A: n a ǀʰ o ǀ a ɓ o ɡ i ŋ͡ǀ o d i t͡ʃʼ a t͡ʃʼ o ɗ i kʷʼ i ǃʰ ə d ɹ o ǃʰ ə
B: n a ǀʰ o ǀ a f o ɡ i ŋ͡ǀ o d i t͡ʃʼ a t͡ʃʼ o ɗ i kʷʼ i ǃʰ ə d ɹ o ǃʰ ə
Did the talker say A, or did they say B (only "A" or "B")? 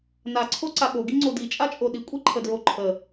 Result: A